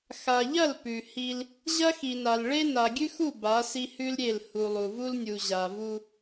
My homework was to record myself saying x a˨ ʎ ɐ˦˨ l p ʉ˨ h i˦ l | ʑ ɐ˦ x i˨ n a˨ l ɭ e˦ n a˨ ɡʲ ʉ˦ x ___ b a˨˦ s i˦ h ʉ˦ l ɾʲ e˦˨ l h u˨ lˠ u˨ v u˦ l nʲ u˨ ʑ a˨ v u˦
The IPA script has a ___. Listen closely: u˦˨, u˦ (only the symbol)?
u˦˨